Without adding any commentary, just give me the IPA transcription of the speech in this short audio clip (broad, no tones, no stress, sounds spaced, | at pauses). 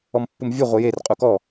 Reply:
ɔ m pː u m vʲ u ʁʷ ɨ j e r qʼ u k ɔ